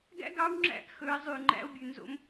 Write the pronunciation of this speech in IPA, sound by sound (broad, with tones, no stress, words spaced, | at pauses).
ɡæ̰˥ɡɑ˧˥wŋ͡ǁæ̰˧˥ʔ xɵ˩˧e̯zˤy˩ŋ͡ǃæ̰˧o̯ bʲʉ˩nzo̰˧m